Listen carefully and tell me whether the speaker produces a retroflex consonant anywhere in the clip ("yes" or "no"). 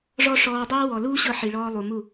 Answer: yes